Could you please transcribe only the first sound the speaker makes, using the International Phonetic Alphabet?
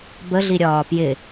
b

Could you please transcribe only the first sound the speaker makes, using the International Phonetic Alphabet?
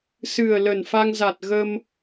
s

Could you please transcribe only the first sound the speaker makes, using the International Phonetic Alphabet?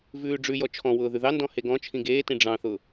v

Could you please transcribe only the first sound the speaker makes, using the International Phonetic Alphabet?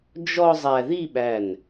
d͡ʒ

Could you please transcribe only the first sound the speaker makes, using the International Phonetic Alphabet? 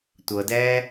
tʷ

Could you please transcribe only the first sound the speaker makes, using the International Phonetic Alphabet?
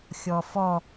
xʲ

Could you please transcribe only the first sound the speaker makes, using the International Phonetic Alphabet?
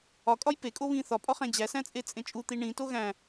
ɒ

